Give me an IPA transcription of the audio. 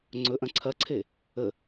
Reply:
ŋ͡ǀ ɵ ʔ ɐ̃ ǀʰ ɐ ǀʰ e | ə

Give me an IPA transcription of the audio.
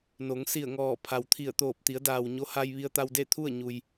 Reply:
n o˩˧ ŋ s i˧˩ ə̯ ŋ ɔː˧˩ pʰ a˩ w t̪ʰ i˧˩ ə̯ t̪ oː˧˩ p̚ t̪ i˩˧ ə̯ d aː˩ w ɲ o˧˥ h a˧ j ʋ i˧ ə̯ t̪ a˧ w d e˥˨ t̪ʰ u˥˨ ə̯ ɲ u˩ j

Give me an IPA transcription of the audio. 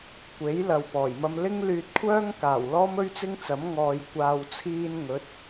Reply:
kʷ e˨˥ j l ɐ˨ w p ɔː˨˩ j m ɐ˧ m l ɪ˥ ŋ l yː˧ t̚ kʷʰ œː˥ ŋ k aː˨˩ w l ɔː˥ m ɵ˥ ɥ t͡s ɪ˥ ŋ t͡s ɐ˨˥ m ŋ ɔː˨ j kʷ aː˨ w t͡sʰ iː˧ n ŋ ɵ˨˥ t̚

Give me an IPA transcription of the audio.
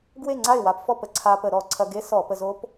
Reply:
ɡ w e˥˨ ŋ͡ǀ a˥˨ ɪ̯ w a˧ p f ɔ˥˨ p ə˧ ǀʰ a˧ p ə˧˩˧ ɾ ɔ˧˩˧ ǀʰ ɐ˧ ɡ e˦˥ s ɔ˧˩˧ p ə˧ z o˦˥ p

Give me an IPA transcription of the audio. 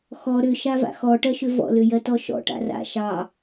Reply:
x ɔ ɾ ʏ ʃ a v a̰ x ɔ ʈ ɜ ʃ ʏ v ɔ̰ l ʏ j ɜ t ɔ ʃ ɔ̰ ʈ a̰ r a̰ ʃ ɑ

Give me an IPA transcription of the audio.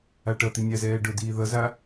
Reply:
a ʈ ʌ t̪ i nʲ a z ɛː ɖ ʊ d iː ð ʌ z a

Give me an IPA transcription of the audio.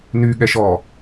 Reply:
n y ɠ ɛ ʃ ɔ

